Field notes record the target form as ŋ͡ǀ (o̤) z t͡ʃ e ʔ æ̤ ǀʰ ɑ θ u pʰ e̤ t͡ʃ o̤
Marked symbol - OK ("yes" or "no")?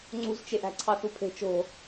no